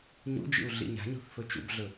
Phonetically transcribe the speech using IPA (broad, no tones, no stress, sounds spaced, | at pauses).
ɲ ṵ d͡ʒ ḭ u̯ ɮ ḭ ɲ a̤ ɲ o̤ θ f ɵ t͡ʃ ṵ b ɮ ɵ